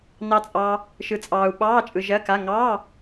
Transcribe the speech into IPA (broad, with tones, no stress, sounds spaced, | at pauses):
n ɑ˧ t͡sʼ ɑ˧ | ʃ ɯ˧ t͡sʼ ɑː˧ u̯ ɓ ɑː˧˥˧ t͡ʃʼ ɯ˧ ʒ ɜ˧˥˧ k a˧˥˧ ŋ ɑ˧˥˧